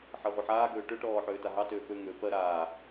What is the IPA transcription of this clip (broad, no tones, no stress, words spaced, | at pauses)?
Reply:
ħɜʁʷəħaːɡøː ʈøʈɔː ħøːtaɦɑtøː pø ŋø pɜ ɾaː